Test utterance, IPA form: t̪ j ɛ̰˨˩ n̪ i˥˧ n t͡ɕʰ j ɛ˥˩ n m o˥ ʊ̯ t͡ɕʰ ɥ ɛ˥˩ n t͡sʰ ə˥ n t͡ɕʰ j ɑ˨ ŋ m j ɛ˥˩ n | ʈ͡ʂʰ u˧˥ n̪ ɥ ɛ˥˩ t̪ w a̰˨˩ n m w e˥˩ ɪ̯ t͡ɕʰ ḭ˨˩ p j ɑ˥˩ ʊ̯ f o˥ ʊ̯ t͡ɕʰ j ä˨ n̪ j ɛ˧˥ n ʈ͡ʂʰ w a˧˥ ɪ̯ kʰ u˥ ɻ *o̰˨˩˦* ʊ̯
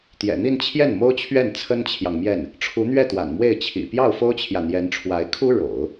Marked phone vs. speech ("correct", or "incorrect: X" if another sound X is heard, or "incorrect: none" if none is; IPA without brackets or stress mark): correct